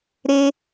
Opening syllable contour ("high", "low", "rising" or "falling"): high